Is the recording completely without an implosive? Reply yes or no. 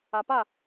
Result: yes